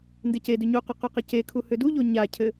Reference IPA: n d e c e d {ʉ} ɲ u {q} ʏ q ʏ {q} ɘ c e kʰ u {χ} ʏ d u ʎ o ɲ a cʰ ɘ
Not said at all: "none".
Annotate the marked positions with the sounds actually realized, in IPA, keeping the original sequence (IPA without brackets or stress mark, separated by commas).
ʉ, q, q, h